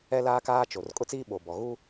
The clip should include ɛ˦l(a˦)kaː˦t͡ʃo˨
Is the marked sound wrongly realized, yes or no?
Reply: yes